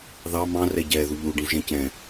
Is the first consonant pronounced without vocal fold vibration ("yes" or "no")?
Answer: no